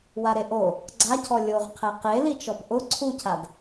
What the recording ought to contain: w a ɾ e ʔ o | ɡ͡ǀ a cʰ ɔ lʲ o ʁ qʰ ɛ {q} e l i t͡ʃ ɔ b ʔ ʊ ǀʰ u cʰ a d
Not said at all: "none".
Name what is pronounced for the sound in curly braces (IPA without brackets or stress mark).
q